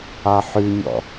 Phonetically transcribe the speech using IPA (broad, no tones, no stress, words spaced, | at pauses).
ɑħʉɲɔ̰